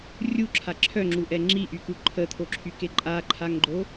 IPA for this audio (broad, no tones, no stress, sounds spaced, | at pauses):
rʲ u ǁʰ a ǁʰ œ ŋ͡ǁ u ʔ ɛ ŋ͡ǁ i ʔ y k u ǃʰ ə t̪ʰ o ǁʰ y k e ǃʼ a ǃʰ a ŋ ɡ͡ǃ o